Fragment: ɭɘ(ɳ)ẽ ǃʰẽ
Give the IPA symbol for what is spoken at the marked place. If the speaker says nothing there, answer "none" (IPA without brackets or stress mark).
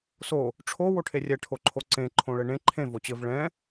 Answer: ɳ